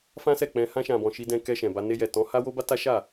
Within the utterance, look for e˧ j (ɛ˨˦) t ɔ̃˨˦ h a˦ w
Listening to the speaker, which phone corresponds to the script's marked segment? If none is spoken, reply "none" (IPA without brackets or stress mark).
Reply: ɛ˨